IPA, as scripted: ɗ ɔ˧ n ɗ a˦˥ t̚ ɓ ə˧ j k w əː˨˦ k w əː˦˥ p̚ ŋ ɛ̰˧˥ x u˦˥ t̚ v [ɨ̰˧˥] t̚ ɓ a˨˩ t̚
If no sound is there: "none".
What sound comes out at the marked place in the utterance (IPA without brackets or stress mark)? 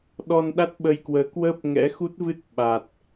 ɨ˦˥